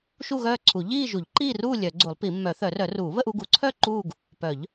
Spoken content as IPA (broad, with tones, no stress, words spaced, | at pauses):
ʃu˥˧ɣœː˥˧ǀʰu˨˩˦ ʎiː˥˧ ʒu˨˩˦ʎǃiː˥˧ruː˥˧ lʲœ˨˩˦ɡ͡ǀu˨˩˦lˠpi˨˩˦ mːœ˨˩˦θœ˨˩˦rœ˨˩˦ruː˨˩˦ βə˥˧ʔu˥˧ɡu˨˩˦ǀʰœ˥˧ ǃuː˥˧ɡ | pœ˨˩˦ʎ